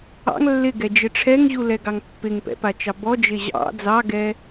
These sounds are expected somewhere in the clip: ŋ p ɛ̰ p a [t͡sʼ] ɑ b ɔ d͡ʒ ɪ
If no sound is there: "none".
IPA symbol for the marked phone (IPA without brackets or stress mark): t͡ʃ